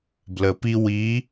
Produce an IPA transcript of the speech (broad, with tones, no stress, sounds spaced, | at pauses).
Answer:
b l ə˩ p i˧ w i˩˧